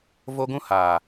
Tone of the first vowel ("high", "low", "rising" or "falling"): high